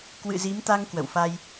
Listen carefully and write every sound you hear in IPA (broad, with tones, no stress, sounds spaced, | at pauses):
k w ɨ̰˧˨ z i˨˦ m t̪ a˧ ŋ k w ə̰˧˨ w f a˧ j